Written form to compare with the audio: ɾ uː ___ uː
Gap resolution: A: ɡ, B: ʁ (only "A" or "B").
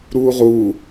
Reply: B